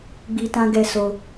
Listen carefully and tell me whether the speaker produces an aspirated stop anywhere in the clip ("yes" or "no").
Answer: no